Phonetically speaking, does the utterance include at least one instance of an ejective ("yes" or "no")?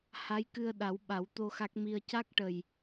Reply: no